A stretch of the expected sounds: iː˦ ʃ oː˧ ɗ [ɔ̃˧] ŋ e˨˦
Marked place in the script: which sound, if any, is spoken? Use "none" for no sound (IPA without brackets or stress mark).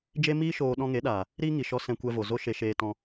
ɔ̃˧